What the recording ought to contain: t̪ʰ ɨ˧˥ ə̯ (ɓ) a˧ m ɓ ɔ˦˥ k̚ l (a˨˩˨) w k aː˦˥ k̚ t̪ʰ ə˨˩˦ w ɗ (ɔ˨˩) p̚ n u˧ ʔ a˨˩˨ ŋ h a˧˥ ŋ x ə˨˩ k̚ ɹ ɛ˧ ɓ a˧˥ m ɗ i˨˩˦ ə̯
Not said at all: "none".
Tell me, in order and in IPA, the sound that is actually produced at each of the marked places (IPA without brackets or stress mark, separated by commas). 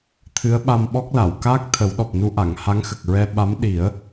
ɓ, a˨˩˨, ɔ˨˩